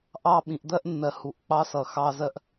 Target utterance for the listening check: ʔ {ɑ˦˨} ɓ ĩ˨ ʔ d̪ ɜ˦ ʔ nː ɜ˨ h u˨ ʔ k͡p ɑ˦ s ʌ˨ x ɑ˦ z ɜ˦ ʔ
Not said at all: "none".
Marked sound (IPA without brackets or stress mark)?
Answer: ɑ˦˨